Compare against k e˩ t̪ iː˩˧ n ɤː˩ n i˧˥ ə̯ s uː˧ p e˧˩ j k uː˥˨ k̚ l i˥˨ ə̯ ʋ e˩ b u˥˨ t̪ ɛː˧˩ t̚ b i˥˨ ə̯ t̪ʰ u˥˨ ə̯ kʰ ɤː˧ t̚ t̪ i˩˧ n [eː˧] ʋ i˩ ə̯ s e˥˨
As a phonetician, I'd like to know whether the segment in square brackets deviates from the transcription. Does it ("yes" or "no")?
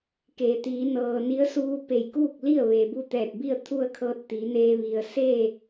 no